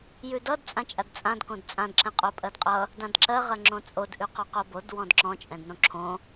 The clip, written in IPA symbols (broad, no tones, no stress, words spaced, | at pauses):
jʉdʌd t͡sʼãt͡ʃʼadt͡sʼãd kõdt͡sʼãd ǁɛ̃qʼopʼɜdqʼʌ | dãdǁɜ ʁɜŋ͡ǁõt͡sʼod ʔʉqɔqobod wɔ̃dǁɔ̃ t͡ʃʼɛ̃dnõǁʰõ